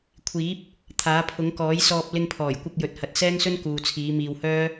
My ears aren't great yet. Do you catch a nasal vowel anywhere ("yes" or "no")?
no